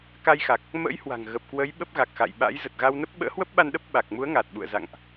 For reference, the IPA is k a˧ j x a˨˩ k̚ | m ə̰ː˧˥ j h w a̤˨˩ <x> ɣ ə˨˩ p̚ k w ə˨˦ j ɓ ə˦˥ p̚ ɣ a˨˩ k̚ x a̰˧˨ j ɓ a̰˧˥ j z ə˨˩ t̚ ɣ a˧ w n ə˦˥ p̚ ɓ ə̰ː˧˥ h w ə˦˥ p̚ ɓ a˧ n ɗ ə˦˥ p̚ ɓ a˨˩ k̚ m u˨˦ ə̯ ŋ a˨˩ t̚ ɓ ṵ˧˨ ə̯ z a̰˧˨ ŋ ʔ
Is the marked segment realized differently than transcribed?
yes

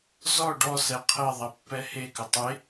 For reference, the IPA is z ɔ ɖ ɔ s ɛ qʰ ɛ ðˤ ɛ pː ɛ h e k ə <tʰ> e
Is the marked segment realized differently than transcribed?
yes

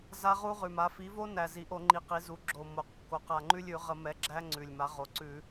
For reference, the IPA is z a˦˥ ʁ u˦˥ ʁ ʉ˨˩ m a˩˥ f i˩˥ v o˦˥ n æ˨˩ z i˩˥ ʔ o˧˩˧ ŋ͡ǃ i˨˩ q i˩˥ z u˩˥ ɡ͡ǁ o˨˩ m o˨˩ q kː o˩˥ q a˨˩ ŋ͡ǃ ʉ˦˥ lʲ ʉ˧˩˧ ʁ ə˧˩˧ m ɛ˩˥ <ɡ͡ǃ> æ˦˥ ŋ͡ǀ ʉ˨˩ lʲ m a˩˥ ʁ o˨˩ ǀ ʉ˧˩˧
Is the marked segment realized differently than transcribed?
yes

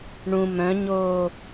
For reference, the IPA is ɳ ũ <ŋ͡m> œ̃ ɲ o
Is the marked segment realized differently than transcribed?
yes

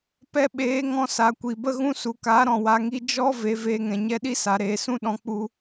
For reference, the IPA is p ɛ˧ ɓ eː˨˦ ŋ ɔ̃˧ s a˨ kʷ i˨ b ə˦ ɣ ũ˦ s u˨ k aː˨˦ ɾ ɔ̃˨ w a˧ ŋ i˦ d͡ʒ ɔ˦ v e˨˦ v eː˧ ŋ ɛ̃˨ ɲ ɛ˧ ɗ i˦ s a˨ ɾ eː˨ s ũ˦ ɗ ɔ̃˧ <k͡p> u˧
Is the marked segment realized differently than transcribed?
no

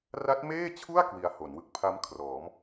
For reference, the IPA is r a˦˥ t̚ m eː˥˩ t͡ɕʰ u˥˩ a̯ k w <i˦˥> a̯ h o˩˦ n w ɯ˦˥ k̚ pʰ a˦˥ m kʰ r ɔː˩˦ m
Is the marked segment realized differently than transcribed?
yes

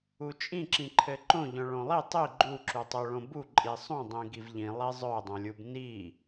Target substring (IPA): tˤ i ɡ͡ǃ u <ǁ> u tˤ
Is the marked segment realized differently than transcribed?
no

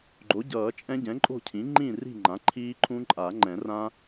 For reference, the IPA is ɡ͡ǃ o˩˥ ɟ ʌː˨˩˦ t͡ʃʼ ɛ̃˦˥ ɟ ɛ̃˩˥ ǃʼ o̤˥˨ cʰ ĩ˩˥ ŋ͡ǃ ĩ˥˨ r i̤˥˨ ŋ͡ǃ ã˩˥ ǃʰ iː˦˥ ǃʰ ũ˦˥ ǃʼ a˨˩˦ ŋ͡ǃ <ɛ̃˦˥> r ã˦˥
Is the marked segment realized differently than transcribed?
yes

